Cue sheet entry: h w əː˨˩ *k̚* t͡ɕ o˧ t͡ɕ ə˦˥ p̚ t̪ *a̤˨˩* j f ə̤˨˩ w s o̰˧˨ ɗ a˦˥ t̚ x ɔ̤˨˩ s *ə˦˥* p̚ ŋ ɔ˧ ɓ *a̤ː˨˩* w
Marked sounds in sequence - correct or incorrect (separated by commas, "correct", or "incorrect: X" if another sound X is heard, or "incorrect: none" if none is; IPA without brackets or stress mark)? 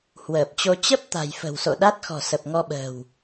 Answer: incorrect: p̚, correct, incorrect: ə˨˩, incorrect: ə̤ː˨˩